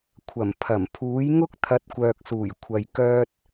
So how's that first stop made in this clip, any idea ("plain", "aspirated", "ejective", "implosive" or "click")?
aspirated